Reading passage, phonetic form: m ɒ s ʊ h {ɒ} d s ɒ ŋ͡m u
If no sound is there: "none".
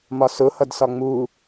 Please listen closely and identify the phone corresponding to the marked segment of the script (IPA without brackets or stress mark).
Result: ʌ